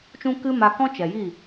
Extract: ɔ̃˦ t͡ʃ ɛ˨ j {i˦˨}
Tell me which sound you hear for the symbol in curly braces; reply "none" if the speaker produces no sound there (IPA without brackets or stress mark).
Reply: i˦˨